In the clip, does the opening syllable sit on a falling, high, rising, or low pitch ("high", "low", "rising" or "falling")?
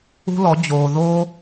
high